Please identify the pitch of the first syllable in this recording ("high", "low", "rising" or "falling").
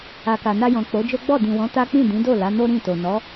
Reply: low